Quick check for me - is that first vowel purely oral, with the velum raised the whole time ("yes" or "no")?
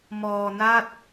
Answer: yes